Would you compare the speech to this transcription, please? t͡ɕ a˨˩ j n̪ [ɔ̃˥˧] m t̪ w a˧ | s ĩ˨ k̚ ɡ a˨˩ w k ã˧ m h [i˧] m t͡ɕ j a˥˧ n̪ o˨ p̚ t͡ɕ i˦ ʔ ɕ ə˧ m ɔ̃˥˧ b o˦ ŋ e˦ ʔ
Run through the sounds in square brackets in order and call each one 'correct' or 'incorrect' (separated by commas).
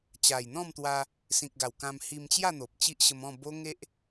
correct, correct